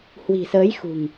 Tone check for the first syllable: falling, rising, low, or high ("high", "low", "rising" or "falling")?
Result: low